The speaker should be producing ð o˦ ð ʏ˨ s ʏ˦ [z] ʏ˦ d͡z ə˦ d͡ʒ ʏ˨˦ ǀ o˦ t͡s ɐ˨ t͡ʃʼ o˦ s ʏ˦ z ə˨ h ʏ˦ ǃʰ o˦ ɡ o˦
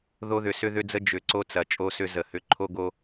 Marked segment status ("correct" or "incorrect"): incorrect